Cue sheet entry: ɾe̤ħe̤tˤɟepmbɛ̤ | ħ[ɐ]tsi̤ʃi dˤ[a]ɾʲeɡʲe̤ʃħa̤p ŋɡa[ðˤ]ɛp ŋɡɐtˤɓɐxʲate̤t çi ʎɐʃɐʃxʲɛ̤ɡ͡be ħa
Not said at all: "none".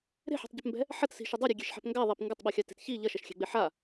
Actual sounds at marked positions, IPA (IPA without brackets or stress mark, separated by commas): ɐ, a, ðˤ